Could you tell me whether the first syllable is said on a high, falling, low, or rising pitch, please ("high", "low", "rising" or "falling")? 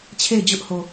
falling